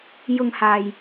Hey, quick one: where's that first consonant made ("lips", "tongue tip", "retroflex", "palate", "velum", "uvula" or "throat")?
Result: palate